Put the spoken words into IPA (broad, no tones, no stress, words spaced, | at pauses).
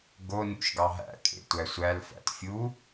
ɡo nṵʃɡɑɦæ̰ kʼḛtʷæsʷæl fæ̰tfʲu